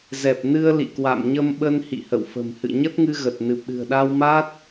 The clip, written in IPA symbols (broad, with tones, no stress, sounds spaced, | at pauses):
z ɛ˨˩ p̚ n ɨ˧ ə̯ l ḭ˧˨ k w a̰˧˨ m ɲ ə˧ m ɓ ə˧ n h ḭ˧˨ h ə̰˧˨ w f ə̤˨˩ m h ɨ̰˧˨ ɲ ə˦˥ t̚ ŋ ɨ˧ ɣ ə˨˩ t̚ n ɨ˨˩ p̚ ɗ ɨ̤˨˩ ə̯ ɗ a˧ w m a˦˥ t̚